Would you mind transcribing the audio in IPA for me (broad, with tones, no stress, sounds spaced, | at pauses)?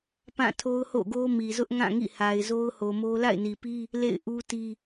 p ã˦˨ tʰ o˦ ʊ̯ h o̰˦˨ ɡ o˦ m i˨ z ʊ˦ ʔ ŋ ã˦˨ ŋ ḭ˦˨ h a˨ ɪ̯ z o˦ ʊ̯ h o˨ m o˦ l a̰˦˨ ɪ̯ n i˨ p i˦ | l ḛ˦˨ ɪ̯ ʔ u˦ t i˦